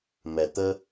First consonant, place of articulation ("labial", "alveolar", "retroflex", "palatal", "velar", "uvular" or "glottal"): labial